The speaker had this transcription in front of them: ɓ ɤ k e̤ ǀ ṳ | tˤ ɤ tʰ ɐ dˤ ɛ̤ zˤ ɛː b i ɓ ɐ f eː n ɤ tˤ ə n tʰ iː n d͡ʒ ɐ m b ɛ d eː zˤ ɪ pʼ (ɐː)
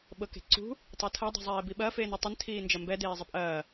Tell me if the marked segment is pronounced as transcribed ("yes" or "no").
yes